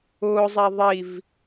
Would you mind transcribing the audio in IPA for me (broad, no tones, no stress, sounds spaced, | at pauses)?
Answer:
ʊː zˤ ɛ ðˤ i v